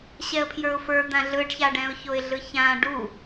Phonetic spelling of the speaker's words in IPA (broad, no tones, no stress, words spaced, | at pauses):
ɕɛə̯pʰjə˞ʊ̯fə˞d̪ã ɮɯɖçaɖɛ̃ʊ̯çoɪ̯ ɮɯçã ɖu